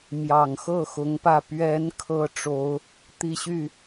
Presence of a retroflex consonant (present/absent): present